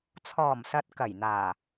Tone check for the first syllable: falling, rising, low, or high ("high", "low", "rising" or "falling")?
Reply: low